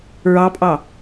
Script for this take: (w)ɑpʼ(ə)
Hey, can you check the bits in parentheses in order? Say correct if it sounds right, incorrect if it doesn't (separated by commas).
incorrect, incorrect